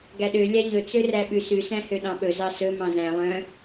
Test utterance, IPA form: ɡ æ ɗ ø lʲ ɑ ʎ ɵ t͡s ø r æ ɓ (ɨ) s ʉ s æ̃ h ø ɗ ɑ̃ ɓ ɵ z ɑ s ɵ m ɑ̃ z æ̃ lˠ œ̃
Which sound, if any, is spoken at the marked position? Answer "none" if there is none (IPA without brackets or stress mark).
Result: ʉ